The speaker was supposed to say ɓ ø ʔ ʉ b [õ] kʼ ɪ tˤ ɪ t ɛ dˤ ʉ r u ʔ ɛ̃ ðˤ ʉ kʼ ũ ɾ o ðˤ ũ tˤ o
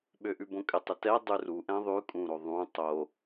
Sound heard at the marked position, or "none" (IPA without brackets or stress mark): õ